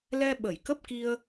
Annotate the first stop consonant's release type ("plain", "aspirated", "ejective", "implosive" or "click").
implosive